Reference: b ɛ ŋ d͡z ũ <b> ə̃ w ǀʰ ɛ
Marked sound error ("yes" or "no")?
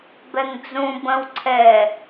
no